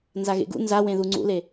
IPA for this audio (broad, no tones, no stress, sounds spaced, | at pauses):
n z a ɣ ḛ ɡ ṵ n z a w ẽ ð u ŋ͡ǀ ṵ l e